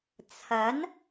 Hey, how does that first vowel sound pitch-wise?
rising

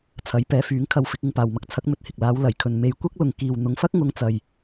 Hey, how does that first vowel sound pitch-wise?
rising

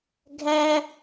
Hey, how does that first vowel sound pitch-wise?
high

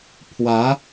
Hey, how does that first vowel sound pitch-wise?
rising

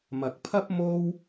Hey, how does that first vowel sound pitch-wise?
low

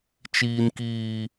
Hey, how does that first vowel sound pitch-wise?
high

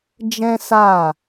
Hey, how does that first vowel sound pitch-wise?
high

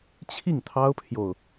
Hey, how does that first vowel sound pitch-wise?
falling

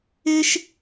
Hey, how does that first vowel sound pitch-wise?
high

